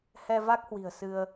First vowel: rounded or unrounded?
unrounded